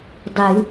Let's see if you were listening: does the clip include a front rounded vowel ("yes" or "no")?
no